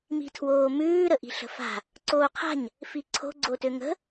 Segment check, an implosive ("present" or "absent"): absent